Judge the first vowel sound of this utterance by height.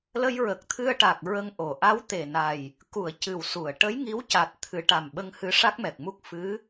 mid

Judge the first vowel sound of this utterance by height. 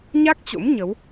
low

